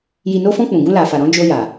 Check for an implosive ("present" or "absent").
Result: absent